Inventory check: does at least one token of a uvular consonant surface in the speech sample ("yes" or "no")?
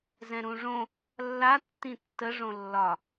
no